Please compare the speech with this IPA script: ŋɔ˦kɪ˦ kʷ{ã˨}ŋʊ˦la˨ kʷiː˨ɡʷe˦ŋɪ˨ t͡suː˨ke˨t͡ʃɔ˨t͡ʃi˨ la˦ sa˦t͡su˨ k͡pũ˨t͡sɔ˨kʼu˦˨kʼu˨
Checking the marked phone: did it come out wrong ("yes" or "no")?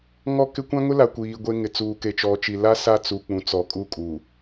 yes